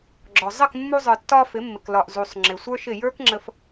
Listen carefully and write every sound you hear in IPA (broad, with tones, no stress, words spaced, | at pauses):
ɡ͡ǁɔ˨ zˤə˦˨kmːu˧ zˤə˞˨tːɒ˧ fɪ˨˦mːɪ˨klɒ˨ʔ zu˨sˤ ŋ͡ǁɪ˨sʷə˞˦ʃɪ˦˨ jə˞˦kŋ͡ǁə˧f